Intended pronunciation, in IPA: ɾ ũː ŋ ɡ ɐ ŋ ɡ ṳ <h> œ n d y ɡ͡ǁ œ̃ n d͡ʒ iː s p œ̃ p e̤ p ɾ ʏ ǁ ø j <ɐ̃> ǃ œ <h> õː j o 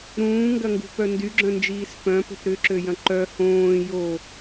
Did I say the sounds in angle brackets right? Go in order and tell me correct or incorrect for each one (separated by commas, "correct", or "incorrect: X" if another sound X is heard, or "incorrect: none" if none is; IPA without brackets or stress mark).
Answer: incorrect: p, correct, correct